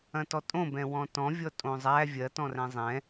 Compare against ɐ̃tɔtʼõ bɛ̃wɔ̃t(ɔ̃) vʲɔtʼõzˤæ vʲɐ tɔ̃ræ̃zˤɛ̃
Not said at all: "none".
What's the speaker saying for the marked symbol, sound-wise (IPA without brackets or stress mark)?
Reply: ɔ̃